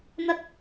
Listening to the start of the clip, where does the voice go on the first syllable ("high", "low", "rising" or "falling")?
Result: low